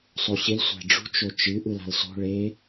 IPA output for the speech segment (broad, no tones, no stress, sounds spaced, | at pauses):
sˤ o ɕ ɪ l sʷ æ̤ ɖ͡ʐ ṳ t͡ʃ o t͡ʃ ɨ ʔ ɯ l a̤ l s o̤ ɭ e